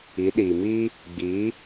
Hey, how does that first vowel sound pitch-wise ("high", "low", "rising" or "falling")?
rising